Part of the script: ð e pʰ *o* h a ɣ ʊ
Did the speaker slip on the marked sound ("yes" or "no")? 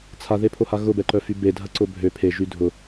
no